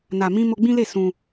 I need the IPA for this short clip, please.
n a˨ m ĩ˧ m o˧ ɡ͡b ĩ˦ l e˦˨ s ũ˧

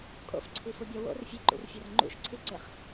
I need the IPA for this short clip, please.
kʼ o̰ f ǀʰ i f u bʲ ɒ w o̰ r fʲ e ǃ ṵ r fʲ ɒ r ŋ͡ǃ ṵ ʃ ǀʰ i ǀ e χ

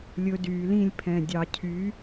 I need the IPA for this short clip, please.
lʲ ɵ˨˥ d yː˩˧ l ĩ˥˧ lʲ pʰ ɛ̃˧˩ dʲ ɑ˧˩˧ cʰ y˨˥

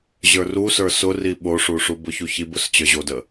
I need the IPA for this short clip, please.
ʑ ə˞ r u s ə˞ s ʊ r i ɓ o ʂ u ʂ u b ʊ ç u ç i b ʊ s t͡ɕ ə˞ ʑ o d ə

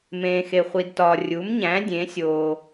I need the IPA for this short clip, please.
m ẽː˨ x e˨ χʷ i˨ d t ɒː˨ rʲ u˩˥ m ɲ æ̃˩˥ dʲ ẽ˩˥ sʲ oː˨

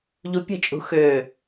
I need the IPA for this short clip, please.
ʎ u pʲ ə̤ t͡ʃʼ ṳ x ø

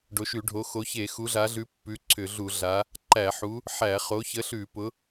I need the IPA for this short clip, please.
ɖ o˨˦ ʃ ʉ˧˩˧ ɖʱ o˨˦ x o˨˦ ç e˧˩˧ x u˨˦ ɮ a˨˦ ɮ ʉ˨˦ pː ʉ˨˦ ǀʰ ʏ˧˩˧ ɮ u˧˩˧ ɮ a˨˦ | ǃ æ˧˩˧ ħ u˨˦ | ħ æ˧˩˧ χ o˨˦ ç ə˨˦ ɬ ʉ˧˩˧ p ʊ˨˦

